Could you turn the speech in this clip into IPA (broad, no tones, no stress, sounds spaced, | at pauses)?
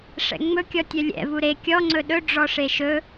ʂ ɛ̰ ŋ͡m ɵ kʲ ɔ tʲ œ lʲ ɛ̰ v u ɾ e kʲ ɔ ŋ͡ǀ ɵ ɗ ɵ ɖ͡ʐ ɔ ʂ e ʃ ɵ